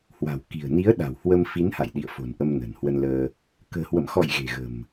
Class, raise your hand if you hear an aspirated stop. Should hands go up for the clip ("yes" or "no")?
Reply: no